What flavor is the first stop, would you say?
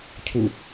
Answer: aspirated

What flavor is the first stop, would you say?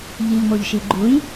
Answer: click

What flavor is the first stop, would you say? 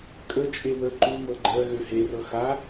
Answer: ejective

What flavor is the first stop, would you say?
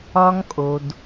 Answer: ejective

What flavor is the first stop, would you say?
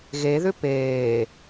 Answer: plain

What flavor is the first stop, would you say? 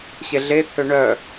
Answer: aspirated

